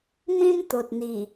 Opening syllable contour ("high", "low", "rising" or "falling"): high